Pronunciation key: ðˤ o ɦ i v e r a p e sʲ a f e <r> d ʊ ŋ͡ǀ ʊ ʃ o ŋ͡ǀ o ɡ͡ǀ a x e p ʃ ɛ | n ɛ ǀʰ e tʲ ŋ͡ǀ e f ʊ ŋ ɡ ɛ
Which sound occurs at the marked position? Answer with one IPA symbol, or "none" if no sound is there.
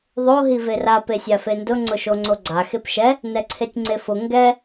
n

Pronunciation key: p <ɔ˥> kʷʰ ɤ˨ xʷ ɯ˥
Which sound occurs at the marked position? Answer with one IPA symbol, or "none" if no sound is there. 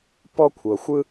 ɔ˥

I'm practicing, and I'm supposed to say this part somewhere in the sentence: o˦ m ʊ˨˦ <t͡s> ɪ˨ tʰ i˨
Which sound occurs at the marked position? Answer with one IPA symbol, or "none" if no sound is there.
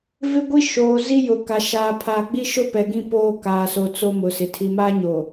s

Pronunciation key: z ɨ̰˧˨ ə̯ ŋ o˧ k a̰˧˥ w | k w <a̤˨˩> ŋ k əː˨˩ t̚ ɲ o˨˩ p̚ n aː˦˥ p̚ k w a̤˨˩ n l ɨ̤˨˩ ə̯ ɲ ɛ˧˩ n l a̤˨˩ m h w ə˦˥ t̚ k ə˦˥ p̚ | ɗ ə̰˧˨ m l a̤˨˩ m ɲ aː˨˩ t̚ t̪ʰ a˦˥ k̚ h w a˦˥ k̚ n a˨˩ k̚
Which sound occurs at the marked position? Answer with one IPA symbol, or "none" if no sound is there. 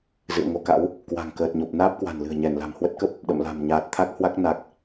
a̤˨˩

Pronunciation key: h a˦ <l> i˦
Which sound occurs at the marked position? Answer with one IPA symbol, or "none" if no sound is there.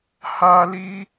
l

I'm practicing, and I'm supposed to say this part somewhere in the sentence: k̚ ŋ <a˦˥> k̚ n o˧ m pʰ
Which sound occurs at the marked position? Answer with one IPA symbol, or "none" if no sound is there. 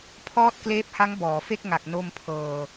a˨˩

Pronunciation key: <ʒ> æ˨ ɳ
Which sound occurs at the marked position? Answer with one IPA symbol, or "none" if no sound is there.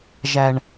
ʒ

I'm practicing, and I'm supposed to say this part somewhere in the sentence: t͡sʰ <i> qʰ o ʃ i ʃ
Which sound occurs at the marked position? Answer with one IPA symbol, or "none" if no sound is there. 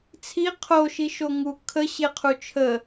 i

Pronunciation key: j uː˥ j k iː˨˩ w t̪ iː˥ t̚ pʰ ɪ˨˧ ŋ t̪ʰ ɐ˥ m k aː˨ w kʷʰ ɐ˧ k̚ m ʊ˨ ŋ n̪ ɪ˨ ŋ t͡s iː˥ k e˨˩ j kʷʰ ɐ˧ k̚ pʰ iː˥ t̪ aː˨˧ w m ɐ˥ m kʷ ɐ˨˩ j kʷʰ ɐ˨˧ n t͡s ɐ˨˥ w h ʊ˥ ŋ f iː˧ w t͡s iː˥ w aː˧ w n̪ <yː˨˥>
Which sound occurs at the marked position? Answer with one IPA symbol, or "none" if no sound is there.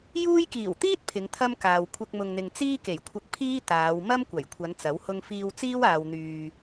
yː˧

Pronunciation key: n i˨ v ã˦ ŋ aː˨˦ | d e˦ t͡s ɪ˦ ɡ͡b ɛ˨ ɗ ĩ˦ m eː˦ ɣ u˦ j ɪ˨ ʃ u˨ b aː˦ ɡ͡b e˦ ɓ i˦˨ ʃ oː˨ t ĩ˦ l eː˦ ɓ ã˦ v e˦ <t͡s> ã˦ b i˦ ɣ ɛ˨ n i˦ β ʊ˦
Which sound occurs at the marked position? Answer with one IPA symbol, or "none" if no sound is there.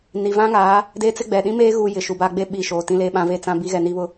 t͡s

